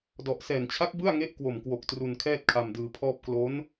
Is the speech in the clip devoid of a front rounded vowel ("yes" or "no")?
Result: yes